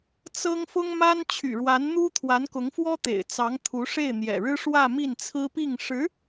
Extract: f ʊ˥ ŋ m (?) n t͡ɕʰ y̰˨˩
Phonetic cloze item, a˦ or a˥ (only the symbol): a˥